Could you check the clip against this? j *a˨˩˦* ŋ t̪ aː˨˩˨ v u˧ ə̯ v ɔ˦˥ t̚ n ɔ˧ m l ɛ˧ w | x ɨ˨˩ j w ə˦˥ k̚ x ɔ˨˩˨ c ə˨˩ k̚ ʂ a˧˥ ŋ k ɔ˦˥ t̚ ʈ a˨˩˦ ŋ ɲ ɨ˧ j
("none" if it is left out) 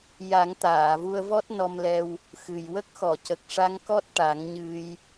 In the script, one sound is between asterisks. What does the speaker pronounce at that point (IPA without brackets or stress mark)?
a˨˩˦